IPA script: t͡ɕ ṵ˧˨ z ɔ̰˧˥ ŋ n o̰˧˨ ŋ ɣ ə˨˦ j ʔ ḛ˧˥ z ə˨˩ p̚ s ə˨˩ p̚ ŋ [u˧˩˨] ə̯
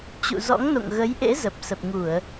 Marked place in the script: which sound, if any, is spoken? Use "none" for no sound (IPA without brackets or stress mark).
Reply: u˧˩˨